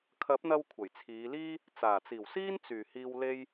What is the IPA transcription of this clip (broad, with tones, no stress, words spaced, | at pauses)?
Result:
kʰɐ˨˥p̚n̪ɐ˧w kʷʰɐ˨˩jt͡sʰiː˨˧liː˥ | t͡saː˨˩t͡siː˨˩wsiː˥n t͡syː˨˩hiː˧w le˥j